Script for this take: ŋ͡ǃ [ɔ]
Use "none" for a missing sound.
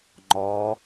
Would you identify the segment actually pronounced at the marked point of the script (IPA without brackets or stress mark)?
ɔ